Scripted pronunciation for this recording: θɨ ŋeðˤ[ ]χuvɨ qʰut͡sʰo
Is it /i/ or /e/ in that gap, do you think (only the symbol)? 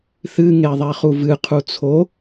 e